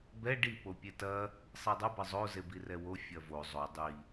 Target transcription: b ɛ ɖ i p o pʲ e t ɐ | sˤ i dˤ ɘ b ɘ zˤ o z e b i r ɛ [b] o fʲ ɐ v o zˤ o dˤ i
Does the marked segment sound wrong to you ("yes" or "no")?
yes